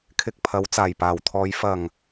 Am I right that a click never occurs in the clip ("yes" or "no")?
yes